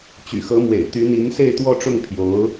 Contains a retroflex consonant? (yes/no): yes